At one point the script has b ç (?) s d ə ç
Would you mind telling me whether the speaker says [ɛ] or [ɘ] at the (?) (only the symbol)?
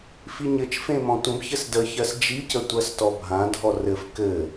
ɘ